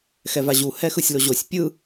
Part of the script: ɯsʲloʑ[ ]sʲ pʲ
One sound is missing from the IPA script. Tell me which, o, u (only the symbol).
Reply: o